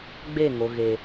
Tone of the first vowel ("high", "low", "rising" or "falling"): falling